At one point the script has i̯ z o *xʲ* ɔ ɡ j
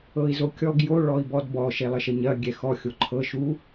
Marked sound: incorrect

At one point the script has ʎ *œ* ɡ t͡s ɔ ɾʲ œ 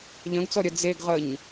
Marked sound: incorrect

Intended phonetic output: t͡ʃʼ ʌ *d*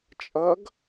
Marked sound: incorrect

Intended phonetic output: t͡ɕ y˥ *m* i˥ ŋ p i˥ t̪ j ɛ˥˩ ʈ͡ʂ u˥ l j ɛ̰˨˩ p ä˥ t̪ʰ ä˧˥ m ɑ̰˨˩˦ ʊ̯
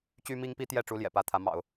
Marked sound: correct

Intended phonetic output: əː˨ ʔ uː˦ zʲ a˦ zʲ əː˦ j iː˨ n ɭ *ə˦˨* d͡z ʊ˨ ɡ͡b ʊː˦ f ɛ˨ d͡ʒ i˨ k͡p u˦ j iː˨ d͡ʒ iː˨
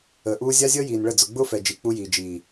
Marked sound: correct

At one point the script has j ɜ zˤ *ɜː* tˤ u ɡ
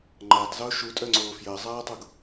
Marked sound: incorrect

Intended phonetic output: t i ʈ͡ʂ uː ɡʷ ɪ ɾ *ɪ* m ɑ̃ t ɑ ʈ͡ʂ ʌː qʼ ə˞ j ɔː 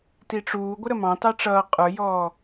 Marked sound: incorrect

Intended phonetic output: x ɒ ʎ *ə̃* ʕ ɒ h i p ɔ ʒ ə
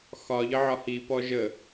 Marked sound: incorrect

